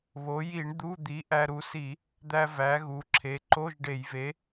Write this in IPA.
β o˩˧ j i˧˩˧ ɳ d̪ u˧˥˧ d̪ i˨˥ ʔ æ˧ ɾ u˨˥ s i˧˩˧ | d̪ æ˧ v æ˩˧ ɣ u˩˧ ǁʰ e˩˧ ǃ o˧˥˧ ʒ ɖ e˧˩˧ j v e˨˥

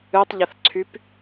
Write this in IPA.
ɨ tˤ ʎ ə θ ǀʰ y p

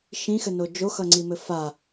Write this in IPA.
ʃ ĩ x ɘ n o d͡ʒ o x ʌ ŋ͡ǀ i m ɘ f a

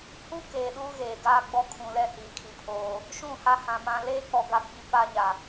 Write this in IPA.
h uː˦ k eː˨ ɗ uː˦ ɣ eː˨ ɡ aː˦ ɡ͡b ɔ˦ kʰ ũ˨ l ɛ˦ h iː˨ kʰ i˨ pʰ oː˨ | ʃ ũ˦˨ h a˦ h ã˨ m ã˨ l eː˦ k͡p ɔ˨ ɡ a˦ ɡ͡b i˦ p a˦ ɲ a˨

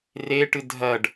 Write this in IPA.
r e ʈ ɨ dʱ ɐ ɖ

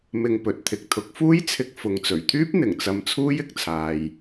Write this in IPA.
m ɪ˧ ŋ p ɵ˨ t̚ t̪ʰ ɪ˨ k̚ t̪ʰ ʊ˨˥ k̚ f uː˥ j t͡sʰ ɪ˧ k̚ f ʊ˨ ŋ t͡s ɵ˨˩ ɥ t̪ʰ yː˥ p̚ n̪ ɪ˨˩ ŋ t͡s ɐ˧ m t͡sʰ uː˥ j ɪ˨˥ k̚ t͡sʰ aː˨ j

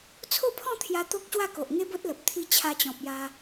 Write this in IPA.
t͡sʰ o˥˧ pʰ ɔ̃˥˧ t̪ʰ j a˧ t̪ o˦ k̚ ɕ w a˥˧ k o˨ ʔ ŋ e˦ b o˦ t̚ l ə˨ p̚ t̪ʰ i˧ t͡ɕʰ a˧ t͡ɕ ɔ̃˨ p̚ j a˧

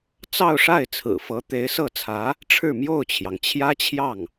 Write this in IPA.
t͡s ɑ˥˧ ʊ̯ ʂ a˥˩ ɪ̯ t͡sʰ ɹ̩˨˩ f ɤ˧˥ t̪ e˧˥ ɪ̯ s ɤ˥˩ t͡sʰ ä˧˥ | ʈ͡ʂʰ ɻ̩˥˧ m j o˥˩ ʊ̯ t͡ɕʰ j ɑ˩ ŋ t͡ɕʰ j ä˥ t͡ɕʰ j ɑ˥˩ ŋ

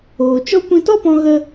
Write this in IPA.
oː˨ t͡ʃ ɔ˦ kʷ ĩ˧ t ɔ˦ p ɔ̃˧ ɣ ə˦

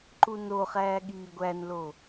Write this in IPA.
ǃ u n o χ æː ɠ iː ɡʷ æ n l o

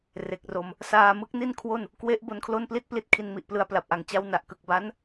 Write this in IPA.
r e˨˩ k̚ r o˧ m | s aː˧ m ɯ˦˥ k̚ n i˥˩ n kʰ w o˥˩ n | k w e˦˥ ʔ b o˦˥ n kʰ l o˥˩ n p l i˥˩ t̚ p l i˥˩ t̚ kʰ i˧ n m i˨˩ ʔ p l ɯ˧ a̯ p l a˨˩ p̚ ʔ a˨˩ ŋ t͡ɕ a˦˥ w n a˨˩ ʔ k ɯ˨˩ k̚ b a˦˥ n

